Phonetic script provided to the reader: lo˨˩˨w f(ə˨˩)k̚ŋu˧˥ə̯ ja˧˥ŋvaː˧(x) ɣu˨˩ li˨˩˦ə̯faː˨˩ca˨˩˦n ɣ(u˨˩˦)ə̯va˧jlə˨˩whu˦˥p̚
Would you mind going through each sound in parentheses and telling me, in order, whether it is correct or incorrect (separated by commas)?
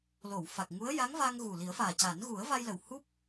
incorrect, incorrect, correct